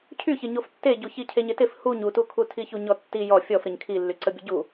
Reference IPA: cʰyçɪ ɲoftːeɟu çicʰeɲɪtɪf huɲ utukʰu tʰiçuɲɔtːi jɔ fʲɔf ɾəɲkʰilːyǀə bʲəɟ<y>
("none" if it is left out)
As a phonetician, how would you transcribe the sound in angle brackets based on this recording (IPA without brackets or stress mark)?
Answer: u